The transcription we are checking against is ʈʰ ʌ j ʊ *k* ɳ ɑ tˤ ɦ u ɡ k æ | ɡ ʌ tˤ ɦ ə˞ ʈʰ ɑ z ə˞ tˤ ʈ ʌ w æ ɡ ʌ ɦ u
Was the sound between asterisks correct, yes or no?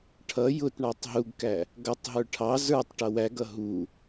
no